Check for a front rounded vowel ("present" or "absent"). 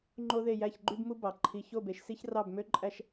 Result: present